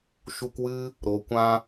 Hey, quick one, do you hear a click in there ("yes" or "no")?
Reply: no